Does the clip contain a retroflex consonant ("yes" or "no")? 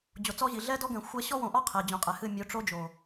yes